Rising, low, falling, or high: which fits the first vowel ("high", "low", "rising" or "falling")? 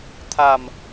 low